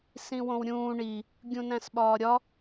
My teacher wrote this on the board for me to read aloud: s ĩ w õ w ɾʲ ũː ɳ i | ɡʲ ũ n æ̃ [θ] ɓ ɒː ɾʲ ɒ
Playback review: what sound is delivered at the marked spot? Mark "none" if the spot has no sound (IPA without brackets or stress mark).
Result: s